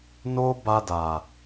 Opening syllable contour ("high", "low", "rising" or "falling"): high